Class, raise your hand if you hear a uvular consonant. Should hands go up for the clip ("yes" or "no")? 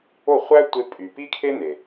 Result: yes